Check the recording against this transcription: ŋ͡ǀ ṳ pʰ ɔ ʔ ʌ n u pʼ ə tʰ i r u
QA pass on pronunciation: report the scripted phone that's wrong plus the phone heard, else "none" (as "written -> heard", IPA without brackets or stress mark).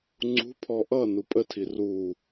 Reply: none